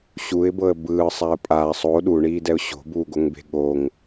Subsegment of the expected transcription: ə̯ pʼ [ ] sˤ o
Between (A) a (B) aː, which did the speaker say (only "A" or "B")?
B